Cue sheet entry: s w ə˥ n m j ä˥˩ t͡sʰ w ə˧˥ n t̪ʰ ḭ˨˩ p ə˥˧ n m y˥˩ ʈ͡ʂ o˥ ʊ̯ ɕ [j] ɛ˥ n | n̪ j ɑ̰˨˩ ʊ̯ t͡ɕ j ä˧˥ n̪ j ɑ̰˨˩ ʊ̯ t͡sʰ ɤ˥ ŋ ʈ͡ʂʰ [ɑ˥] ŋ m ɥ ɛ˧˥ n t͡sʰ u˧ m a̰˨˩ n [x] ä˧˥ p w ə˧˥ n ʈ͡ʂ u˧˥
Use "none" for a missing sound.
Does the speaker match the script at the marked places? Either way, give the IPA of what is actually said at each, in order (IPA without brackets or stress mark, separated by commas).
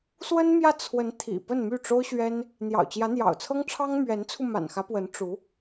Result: ɥ, ɑ˥, x